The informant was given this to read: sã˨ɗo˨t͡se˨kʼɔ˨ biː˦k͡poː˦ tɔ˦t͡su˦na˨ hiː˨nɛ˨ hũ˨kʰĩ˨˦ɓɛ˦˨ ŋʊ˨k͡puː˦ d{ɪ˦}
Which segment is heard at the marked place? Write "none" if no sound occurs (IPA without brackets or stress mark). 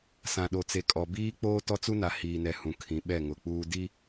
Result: i˦